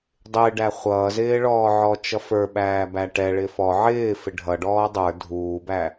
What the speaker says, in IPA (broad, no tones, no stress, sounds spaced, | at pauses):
dˤ ɪː ɖ æ χʷ ʌː z ɪː ɭ ɔː ʕ ɔ t͡ʃ ʌ f ə˞ ɓ æː b æ ʈ ɛ ɭ ɪ f ɔ ʕ ɪː f ɪ ɖʱ ʌ ɖ ɔː dˤ ə˞ dʱ uː b æ